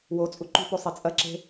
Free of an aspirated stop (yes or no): yes